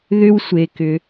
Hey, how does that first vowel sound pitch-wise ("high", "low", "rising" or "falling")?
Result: high